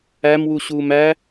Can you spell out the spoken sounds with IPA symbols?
æmwu ɕuːmæ

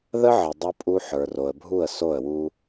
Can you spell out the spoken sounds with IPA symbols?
ðə˦ʕə˨ dˤu˦pʼu˦ ħə˞˨ro˨ə̯bʱu˦˨ə̯ so˦˨ə̯wu˦

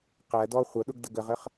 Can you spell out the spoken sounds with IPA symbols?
qæ dɔ χʷʌɗʊɡ dəɡəʁəχ

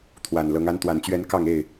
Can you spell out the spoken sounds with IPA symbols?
t̪ʰwa˨˩nlɤ˨˦ŋ a˨˦nt̪wa˨˩nt͡ɕɥɛ˨˦n kɑ˥˨ŋe˥˨ɪ̯

